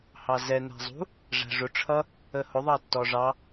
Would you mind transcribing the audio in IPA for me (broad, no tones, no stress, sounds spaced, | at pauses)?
h ɑ z ɛ n æ̤ zˤ ṳ | ʐ æ̤ ʐ ʊ ʈ͡ʂʰ ʌ | ə h ʊ ðˤ ɑ tː ɔ ʐ ɑ